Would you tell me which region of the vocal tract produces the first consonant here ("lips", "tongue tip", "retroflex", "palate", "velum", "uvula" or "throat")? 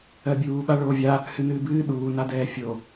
lips